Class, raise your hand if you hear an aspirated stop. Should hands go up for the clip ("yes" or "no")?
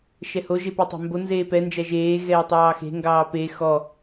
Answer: no